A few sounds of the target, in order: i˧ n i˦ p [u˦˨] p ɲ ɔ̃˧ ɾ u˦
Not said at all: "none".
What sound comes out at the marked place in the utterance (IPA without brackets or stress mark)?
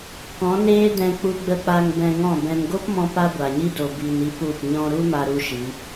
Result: u˦˨